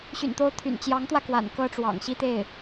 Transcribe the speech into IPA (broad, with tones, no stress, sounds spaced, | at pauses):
ɕ y̰˨˩ n t̪ o˧˥ ʊ̯ t̪ʰ y̰˨˩ n t͡ɕ j ɑ˧˥ ŋ t̪ w ä˧ k w a̰˨˩ n k ɤ˥ ʈ͡ʂ w ɑ̰˨˩ ŋ ɕ i˥ t̪ e˥˩ ɪ̯